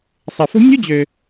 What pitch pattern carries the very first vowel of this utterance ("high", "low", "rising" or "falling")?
low